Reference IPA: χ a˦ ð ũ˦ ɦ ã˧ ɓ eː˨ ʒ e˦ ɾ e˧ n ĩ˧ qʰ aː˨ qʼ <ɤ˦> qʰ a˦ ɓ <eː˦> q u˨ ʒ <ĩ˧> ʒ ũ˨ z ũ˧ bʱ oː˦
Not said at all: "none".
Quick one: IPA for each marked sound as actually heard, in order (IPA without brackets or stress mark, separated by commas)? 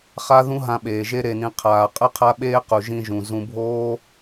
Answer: ɯ˦, eː˦, ĩ˧